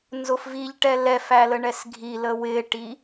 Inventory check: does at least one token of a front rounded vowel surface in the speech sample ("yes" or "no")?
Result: no